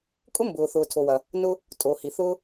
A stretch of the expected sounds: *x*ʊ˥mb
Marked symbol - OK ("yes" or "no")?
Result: no